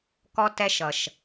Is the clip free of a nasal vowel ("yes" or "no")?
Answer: yes